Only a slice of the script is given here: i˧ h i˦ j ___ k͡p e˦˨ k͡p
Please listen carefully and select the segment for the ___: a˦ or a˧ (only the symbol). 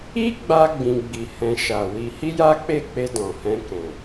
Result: a˦